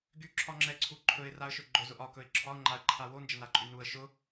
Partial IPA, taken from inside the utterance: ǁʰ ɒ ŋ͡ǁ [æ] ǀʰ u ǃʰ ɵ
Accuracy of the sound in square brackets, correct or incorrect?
incorrect